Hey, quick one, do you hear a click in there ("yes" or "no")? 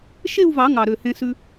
no